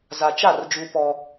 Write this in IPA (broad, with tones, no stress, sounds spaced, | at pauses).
z a˨ t͡ʃ a˦˨ r d͡ʒ uː˦ p ɔ˦